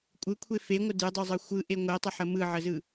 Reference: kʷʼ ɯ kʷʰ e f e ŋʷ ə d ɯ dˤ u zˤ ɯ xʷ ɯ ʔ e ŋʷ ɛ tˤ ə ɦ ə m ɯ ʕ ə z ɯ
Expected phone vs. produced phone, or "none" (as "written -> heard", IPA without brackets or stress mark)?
ɦ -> ħ